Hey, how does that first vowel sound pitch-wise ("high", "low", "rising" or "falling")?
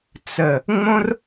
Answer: low